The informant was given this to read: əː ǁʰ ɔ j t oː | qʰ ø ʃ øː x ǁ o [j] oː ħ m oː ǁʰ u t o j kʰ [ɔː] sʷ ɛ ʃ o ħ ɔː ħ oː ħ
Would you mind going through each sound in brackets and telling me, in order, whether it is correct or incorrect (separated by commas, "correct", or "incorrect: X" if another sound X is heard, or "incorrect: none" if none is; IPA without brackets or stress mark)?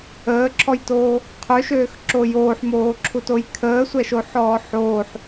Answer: correct, incorrect: əː